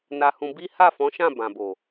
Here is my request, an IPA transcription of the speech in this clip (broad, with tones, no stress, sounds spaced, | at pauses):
n a˧ h ũ˧ b i˦ h a˦˨ f ɔ̃˨˦ ʃ ã˦˨ b ã˨ b o˨